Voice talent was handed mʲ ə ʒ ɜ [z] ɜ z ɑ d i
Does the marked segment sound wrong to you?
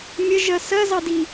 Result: yes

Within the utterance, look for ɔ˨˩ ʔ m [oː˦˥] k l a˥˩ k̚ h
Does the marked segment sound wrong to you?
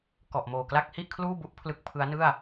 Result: yes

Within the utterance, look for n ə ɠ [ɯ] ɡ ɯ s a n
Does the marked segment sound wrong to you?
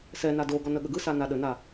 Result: yes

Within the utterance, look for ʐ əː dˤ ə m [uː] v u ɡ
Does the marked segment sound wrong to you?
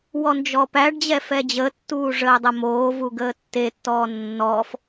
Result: yes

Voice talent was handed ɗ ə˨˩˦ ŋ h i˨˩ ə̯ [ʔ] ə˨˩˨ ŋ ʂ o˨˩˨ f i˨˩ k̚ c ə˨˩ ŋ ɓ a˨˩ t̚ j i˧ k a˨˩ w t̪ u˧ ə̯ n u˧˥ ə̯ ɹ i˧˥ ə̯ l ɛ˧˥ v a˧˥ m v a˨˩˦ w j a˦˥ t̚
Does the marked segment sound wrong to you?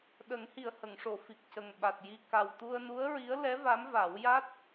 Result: yes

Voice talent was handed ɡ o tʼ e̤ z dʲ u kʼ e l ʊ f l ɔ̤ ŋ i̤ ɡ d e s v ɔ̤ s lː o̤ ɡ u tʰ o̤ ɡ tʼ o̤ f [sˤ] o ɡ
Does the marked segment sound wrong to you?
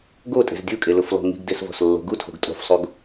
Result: no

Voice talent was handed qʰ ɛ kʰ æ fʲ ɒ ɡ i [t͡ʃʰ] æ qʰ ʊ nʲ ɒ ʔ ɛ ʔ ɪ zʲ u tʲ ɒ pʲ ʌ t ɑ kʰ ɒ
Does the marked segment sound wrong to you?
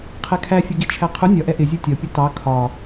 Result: no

